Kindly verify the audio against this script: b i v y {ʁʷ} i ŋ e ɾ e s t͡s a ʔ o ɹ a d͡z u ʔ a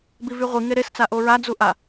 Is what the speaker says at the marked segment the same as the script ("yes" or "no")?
yes